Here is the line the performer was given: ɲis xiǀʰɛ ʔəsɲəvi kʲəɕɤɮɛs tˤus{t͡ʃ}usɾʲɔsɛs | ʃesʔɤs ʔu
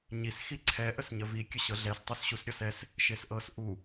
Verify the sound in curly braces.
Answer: incorrect: ɕ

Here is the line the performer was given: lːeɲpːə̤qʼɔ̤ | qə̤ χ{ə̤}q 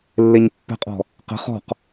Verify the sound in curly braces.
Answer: incorrect: ɔ̤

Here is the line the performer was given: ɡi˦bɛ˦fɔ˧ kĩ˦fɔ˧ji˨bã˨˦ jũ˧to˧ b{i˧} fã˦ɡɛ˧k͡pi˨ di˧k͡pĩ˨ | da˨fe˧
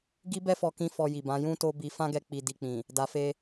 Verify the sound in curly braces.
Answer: correct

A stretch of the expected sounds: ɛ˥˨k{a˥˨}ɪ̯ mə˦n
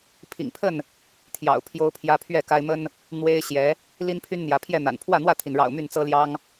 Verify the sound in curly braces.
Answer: incorrect: a˦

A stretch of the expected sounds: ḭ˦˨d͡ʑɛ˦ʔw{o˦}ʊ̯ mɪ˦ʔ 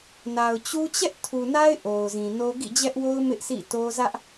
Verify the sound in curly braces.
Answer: correct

